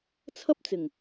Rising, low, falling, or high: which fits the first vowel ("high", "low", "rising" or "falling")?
high